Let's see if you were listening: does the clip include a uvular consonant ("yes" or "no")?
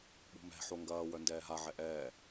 no